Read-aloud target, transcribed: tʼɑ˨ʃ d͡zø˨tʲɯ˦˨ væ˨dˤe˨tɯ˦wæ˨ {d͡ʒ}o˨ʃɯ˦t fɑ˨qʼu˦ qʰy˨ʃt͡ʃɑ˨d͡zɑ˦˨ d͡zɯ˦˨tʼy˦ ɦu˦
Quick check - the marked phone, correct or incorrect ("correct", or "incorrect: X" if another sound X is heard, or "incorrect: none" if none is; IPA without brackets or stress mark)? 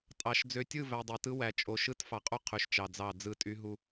incorrect: t͡ʃʼ